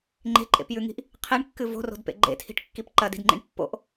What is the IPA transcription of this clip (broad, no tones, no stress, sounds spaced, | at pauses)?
ŋ͡ǃ e̤ ǃʼ ḛ p j ʉ ŋ i̤ ʔ | qʰ i ɳ kː ɨ v o̤ r o̤ d p ḛ ɡ͡ǃ ḛ tʰ i̤ ʈ kː i p ǃ ɐ d i̤ d ŋ͡ǃ ḭ ɳ pː o̰ ʔ